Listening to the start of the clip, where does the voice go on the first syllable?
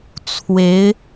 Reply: rising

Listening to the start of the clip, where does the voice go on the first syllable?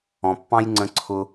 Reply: low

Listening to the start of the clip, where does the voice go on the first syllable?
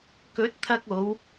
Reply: rising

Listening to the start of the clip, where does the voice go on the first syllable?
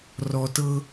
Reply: low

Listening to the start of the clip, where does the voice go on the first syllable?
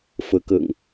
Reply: rising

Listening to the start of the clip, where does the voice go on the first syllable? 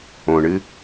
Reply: low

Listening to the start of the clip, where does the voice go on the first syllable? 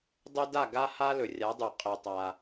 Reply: high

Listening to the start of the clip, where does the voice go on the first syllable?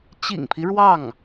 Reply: low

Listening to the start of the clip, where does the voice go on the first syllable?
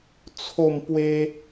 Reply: falling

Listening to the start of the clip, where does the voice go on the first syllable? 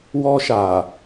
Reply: high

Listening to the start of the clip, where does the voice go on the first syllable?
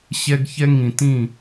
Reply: high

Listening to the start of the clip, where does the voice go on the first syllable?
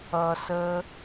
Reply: low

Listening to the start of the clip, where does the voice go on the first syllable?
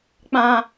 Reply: low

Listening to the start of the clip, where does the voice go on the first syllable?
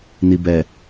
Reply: low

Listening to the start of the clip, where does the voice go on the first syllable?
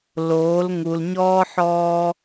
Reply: rising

